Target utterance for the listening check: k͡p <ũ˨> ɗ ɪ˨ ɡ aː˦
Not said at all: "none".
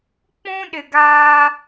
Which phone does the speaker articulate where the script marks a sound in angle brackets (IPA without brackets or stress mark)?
ũ˦